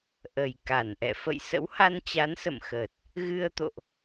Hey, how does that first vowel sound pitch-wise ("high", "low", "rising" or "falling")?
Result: low